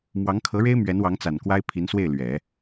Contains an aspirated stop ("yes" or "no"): yes